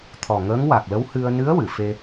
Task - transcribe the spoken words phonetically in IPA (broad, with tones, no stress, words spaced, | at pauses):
t̪ʰɔ˨˩ŋəː˧˥ŋwa˨˩k̚ lə˧˥whɨ˧ə̯ nɨ˧˥ə̯ wɨ˨˩˨fe˧